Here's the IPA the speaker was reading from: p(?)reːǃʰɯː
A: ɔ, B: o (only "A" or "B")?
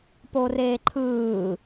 B